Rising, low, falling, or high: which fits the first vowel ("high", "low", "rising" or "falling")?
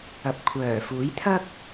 low